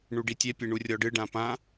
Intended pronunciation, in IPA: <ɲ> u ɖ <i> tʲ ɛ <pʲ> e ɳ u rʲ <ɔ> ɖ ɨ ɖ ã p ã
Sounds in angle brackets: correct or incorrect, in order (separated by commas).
incorrect, correct, correct, correct